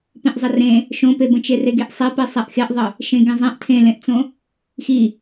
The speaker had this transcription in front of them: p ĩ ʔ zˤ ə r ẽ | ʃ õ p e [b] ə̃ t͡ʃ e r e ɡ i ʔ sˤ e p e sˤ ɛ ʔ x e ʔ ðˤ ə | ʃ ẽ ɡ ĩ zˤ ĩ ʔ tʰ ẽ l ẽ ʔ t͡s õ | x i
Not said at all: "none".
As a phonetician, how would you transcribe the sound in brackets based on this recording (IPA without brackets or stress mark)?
b